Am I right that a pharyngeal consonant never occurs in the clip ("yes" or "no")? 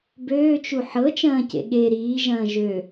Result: no